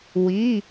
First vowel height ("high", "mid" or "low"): high